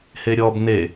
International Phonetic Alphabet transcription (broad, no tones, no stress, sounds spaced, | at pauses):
h e ɾʲ ɔ b n e